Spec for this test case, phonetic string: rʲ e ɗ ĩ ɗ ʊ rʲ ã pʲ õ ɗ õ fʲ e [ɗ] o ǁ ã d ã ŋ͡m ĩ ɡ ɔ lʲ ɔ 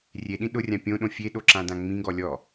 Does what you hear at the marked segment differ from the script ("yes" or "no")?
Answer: no